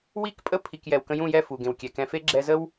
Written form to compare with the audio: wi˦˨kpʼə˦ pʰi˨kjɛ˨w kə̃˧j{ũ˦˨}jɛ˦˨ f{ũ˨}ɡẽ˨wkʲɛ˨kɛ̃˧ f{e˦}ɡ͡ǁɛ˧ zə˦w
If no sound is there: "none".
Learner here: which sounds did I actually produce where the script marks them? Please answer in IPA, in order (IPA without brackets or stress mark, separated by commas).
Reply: ũ˦˨, u˨, e˦